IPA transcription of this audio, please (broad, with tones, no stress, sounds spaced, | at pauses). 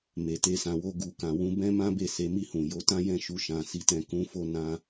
m e˨ t e˧ s ã˨ w o˧ ɡ u˨ k ã˨ w ũ˧ b ɛ̃˦ m ã˦ b e˦˨ s e˨˦ m i˦˨ h ũ˨ j o˨˦ t ã˦ j ɛ̃˦˨ ʃ u˧ ʃ ã˨ s i˨˦ t ɛ̃˧ k ũ˦ f o˦ n ã˦